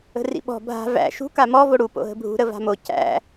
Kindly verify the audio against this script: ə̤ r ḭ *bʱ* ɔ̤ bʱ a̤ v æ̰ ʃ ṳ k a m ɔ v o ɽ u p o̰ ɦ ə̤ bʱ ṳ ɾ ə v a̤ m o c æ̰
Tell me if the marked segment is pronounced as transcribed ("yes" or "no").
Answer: no